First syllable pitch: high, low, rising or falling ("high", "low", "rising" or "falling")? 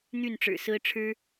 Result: falling